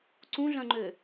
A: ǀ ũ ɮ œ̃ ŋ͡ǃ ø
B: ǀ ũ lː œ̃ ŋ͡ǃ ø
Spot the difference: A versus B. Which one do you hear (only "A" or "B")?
A